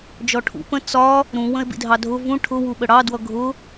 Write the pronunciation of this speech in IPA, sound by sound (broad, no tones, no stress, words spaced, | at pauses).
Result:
d͡ʒɔʈʰṵ pə̃ t͡sɒ | ɾũ wə̃e̯bḭdʱɑdʱʊ vũ ʈʰʊ wuɓəɽɑ dwʌɡʱʊ